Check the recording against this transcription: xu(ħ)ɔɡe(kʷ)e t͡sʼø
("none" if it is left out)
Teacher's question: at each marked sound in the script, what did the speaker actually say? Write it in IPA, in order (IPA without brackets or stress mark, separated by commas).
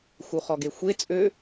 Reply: χ, xʷ